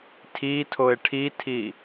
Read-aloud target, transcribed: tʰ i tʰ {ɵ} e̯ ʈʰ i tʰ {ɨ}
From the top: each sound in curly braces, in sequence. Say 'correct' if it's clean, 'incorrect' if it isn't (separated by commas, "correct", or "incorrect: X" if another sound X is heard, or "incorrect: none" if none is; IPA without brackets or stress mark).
incorrect: o, incorrect: i